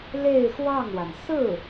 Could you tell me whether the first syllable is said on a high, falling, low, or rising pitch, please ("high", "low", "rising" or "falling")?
falling